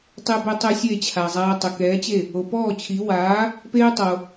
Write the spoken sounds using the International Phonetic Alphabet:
tˤe˧be˧ tˤɛ˧ sʲe˥˩t͡ɕʰa˩zˤaː˧ tˤə˩kɛː˩˥t͡ɕe˥˩ | o˩pɔː˥˩t͡ɕʰi˩˥ waː˩˥ | peː˥tˤo˩

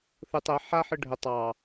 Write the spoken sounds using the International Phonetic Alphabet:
θɯtˤ ɛ ħaħɯ ɖʱə tˤɑ

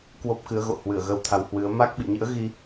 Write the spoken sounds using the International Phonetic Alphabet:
kwo˦˥p̚kɨ˨˦ə̯ɣo̰˧˨hwɨ˧˩ə̯ ɣə˧wt̪ʰa˨˦whwɨ˨˦ə̯ ma˦˥k̚ɓḭ˧˨ɲɨ̰˧˥ə̯ɣi˧

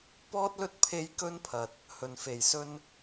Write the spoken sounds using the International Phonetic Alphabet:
pɔː˥t̚lɵ˥t̚ pʰe˥j kɵ˥npʰɐ˨t̚ | hɵ˨nfe˨jsɵ˥n

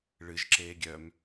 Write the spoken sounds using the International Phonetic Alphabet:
ɭɨʒ ǁeːɡʲœm

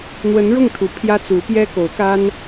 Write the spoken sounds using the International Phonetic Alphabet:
n̪wə˧˥nɻʊ˥˩ŋt̪ʰu˨˩ pʰjä˥t͡su˧˥ pjɛ˥ko˧˥ʊ̯ka˥n

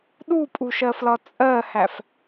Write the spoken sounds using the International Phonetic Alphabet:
ɗupʼuʃɜflɒ t͡sʼɜhæf

